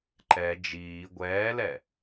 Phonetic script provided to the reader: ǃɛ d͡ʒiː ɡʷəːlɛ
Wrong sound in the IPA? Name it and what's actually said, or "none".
əː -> ɛː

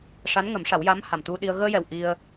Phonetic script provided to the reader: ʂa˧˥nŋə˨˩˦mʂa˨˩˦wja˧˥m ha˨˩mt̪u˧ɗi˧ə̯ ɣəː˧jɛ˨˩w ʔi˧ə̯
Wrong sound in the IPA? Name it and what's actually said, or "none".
none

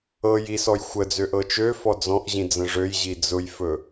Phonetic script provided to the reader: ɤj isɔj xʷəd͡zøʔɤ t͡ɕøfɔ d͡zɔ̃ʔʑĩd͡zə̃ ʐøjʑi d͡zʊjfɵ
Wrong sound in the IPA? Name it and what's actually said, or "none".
t͡ɕ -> t͡ʃ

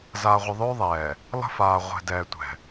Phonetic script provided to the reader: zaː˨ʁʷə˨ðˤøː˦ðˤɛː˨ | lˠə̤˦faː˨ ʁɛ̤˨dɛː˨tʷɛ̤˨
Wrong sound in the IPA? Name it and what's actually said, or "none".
ʁ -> ʁʷ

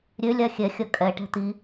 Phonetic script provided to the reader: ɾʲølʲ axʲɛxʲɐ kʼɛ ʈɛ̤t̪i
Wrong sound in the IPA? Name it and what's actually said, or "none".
none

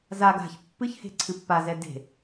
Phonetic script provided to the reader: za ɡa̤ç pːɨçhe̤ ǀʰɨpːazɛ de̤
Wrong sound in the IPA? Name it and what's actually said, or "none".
none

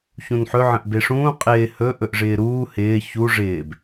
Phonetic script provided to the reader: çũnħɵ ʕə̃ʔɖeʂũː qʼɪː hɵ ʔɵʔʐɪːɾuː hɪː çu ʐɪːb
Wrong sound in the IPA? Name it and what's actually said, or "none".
ɖ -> b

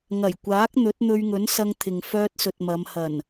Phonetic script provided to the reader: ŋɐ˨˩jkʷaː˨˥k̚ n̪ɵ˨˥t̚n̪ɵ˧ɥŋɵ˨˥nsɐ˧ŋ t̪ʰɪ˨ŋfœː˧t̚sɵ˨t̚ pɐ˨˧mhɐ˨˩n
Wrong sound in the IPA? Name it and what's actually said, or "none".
p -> m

